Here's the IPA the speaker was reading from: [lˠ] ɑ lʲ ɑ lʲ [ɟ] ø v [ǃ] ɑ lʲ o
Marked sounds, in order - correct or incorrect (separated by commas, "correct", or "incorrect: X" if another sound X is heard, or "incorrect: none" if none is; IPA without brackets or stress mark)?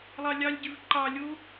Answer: correct, correct, correct